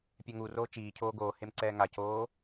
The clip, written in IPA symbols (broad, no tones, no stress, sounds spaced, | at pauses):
pʲ ɛ ŋ u r oː t͡ʃ iː cʰ oː ɡ oː h e m ǀ ɛː ŋ a c oː